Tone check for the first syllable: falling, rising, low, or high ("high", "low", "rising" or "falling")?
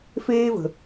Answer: high